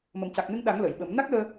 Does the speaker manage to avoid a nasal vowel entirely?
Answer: yes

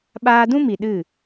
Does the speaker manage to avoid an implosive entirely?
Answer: no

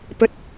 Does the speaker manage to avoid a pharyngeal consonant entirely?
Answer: yes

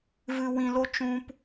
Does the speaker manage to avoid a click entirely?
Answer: yes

